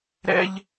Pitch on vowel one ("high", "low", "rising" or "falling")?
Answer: high